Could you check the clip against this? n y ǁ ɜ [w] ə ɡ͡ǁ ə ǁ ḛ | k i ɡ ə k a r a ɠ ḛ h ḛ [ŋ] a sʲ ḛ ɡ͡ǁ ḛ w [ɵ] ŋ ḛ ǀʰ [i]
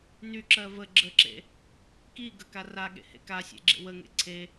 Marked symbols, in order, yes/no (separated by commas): no, no, no, no